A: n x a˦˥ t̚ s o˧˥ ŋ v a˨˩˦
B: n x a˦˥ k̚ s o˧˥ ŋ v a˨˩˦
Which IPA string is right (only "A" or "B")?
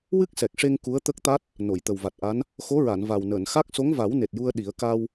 B